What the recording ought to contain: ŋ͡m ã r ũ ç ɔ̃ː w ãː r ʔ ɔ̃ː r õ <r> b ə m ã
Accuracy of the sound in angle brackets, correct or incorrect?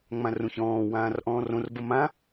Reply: correct